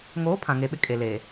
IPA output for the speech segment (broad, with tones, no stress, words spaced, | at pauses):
ŋoː˨˦ pʰã˨ŋe˨ɓɪ˦ kʼe˨leː˨